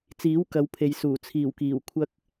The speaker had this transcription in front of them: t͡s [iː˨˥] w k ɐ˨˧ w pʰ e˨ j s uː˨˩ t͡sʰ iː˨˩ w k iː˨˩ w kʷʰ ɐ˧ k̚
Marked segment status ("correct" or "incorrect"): correct